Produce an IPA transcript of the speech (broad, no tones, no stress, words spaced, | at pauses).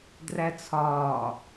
dræt͡sʰɒː